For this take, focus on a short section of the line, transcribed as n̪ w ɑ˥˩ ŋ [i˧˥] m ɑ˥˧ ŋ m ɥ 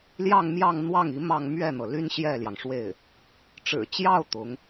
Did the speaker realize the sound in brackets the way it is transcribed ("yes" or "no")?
yes